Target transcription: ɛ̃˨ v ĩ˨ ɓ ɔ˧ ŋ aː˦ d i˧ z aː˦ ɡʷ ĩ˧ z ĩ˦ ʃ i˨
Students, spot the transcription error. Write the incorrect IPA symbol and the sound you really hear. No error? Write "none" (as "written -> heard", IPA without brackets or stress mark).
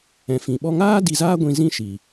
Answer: v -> f